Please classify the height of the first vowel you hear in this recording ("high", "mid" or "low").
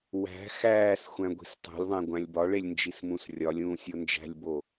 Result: low